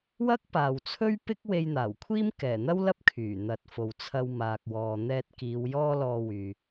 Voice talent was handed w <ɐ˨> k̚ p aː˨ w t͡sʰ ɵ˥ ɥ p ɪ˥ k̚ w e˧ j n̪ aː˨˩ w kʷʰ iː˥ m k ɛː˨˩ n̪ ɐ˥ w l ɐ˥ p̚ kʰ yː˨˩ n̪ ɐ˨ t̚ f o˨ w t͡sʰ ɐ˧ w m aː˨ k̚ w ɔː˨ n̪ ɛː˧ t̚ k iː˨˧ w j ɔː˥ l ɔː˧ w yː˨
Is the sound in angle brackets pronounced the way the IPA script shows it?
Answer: no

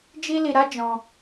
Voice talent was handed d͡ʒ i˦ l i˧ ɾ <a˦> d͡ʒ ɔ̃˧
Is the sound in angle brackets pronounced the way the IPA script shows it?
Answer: yes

